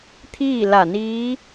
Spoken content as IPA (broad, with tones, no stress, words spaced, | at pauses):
t̪ʰiː˥˨la˧˩niː˧˥